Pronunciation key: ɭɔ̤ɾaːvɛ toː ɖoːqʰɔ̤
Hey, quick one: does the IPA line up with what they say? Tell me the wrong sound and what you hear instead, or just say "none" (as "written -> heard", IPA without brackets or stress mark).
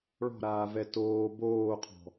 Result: ɖ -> b